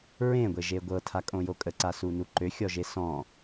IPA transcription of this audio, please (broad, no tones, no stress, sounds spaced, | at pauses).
ɹ ẽ ɡʷ e ʒ e ɡʷ ɤ tʰ a kʼ õ j o kʼ ə ǀ a s u n u ǃ ø xʲ ɔ ʒ e s ɔ̃